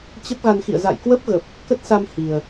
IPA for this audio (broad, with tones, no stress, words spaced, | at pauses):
t͡ɕə˦˥p̚ɣa˧nxḭ˧˨ə̯ za̰˧˨jkwə˦˥p̚ɣə˨˩p̚ | kə˦˥t̚sa˧m hi˨˩ə̯